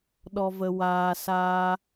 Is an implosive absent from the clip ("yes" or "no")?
no